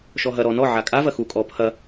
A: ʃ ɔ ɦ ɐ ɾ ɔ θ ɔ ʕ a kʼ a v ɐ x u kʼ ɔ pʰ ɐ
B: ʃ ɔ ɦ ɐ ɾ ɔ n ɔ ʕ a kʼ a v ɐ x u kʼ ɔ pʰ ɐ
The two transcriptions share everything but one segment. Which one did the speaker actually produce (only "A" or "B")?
B